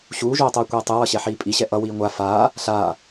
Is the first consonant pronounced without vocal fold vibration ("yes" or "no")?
yes